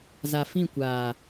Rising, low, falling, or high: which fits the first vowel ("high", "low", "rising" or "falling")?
low